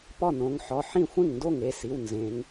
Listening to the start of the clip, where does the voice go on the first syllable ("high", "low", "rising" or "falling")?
falling